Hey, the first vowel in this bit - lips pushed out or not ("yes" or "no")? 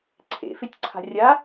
no